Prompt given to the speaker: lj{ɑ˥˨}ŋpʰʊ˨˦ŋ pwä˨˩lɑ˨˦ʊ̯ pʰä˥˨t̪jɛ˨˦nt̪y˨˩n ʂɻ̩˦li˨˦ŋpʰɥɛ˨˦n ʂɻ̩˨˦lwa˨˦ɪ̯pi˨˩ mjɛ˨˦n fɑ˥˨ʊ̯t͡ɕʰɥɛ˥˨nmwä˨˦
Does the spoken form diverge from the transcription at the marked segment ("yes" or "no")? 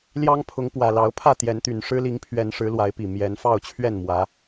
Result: yes